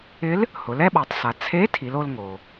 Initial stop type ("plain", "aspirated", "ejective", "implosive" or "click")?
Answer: implosive